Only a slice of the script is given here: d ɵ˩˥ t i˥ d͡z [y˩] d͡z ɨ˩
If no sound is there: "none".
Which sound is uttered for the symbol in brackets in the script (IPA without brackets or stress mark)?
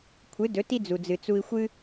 u˩